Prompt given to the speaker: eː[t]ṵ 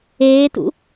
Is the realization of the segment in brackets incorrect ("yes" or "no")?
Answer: no